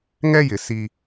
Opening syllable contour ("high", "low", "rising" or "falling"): high